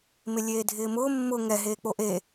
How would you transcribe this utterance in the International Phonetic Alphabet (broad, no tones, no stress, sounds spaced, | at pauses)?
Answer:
m ɪ lʲ eː dʱ ɪː m ʊː mː ʊ ŋ ɛ ɦ eː k͡p o ʔ e